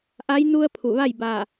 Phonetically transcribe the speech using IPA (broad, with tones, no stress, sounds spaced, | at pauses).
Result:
ʔ a˧˥ j n u˧ ə̯ pʰ u˧˩ ʋ a˥˨ j b aː˧˩